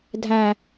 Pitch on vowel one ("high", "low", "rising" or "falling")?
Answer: high